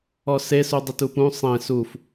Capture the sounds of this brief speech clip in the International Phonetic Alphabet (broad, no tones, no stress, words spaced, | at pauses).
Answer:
ɔse sudˤɘtupũ sˤẽ suf